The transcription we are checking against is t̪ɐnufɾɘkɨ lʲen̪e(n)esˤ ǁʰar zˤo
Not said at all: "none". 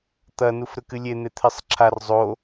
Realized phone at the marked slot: t̪ʰ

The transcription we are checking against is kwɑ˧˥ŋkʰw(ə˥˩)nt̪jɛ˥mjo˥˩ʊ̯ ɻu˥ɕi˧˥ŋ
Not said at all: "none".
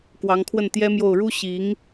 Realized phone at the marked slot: ə˥˩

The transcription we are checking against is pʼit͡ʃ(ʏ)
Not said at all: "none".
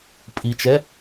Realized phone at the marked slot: ɛ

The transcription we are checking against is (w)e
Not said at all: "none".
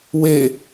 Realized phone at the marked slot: w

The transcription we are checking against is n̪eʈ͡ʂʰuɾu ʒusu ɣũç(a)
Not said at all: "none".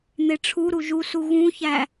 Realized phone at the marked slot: æ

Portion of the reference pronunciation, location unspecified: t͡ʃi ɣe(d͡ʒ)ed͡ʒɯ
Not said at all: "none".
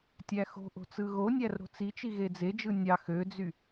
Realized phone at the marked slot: d͡z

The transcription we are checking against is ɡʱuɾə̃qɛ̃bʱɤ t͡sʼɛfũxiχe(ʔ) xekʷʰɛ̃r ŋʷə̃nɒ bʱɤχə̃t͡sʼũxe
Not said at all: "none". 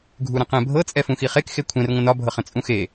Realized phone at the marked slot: k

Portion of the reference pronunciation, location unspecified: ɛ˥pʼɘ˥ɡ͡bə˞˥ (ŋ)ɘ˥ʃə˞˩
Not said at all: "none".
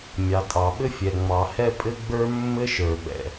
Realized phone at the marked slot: mː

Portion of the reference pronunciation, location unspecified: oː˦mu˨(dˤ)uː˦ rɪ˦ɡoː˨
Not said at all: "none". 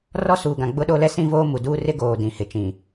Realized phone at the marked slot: d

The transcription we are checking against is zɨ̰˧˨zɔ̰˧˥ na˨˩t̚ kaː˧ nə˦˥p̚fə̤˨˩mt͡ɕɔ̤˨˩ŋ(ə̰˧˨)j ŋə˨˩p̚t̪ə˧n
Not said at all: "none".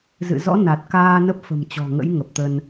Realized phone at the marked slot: ə̰˧˥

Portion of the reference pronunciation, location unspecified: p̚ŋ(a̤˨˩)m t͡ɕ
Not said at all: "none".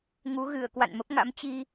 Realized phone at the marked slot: a̰˧˥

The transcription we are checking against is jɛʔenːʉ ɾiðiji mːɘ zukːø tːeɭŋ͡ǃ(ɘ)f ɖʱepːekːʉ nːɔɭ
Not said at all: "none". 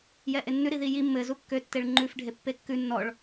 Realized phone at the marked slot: ʉ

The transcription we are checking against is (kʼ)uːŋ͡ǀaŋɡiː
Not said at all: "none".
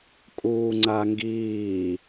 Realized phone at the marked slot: kʼ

